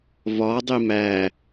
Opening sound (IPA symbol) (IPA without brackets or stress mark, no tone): v